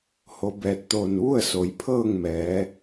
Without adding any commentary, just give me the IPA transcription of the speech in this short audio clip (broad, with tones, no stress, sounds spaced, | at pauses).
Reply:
h o˧˥ b ɛː˧ t̚ t̪ oː˧˩ n ʋ u˥˨ ə̯ s o˩˧ j pʰ ɤː˥˨ ŋ m ɛː˩˧